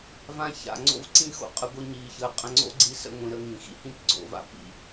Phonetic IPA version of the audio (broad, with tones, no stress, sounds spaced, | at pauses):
v ã˦ ç a̰˨ ŋ͡ǀ o̰˦ v ǀ ĩ˦ x o̰˨ qʼ ə˧ ɡʷ i˧ ɲ iː˨ ç əː˨ qʼ ə̃˧ ŋ͡ǀ o̰˦ ɡ͡ǀ i˧ s ə̰˧ ŋʷ ĩ˨ ɾ ə˧ ŋ ĩ˨ x ḭ˧ h ĩ˦ p ɡ͡ǀ o̰˨ v a̰˨ p ḭ˨